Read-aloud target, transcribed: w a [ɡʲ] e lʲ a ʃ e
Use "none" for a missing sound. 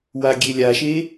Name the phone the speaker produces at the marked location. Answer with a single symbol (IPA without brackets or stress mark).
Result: ɡʲ